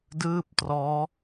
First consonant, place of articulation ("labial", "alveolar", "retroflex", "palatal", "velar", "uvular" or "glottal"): alveolar